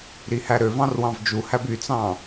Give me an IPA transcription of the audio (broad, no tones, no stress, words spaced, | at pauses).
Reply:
ɾihæɾøvɑ̃r wɑ̃vd͡ʒuhæb yt͡sɑ̃